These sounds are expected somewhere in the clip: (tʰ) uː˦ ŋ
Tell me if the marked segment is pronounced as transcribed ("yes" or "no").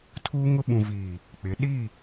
yes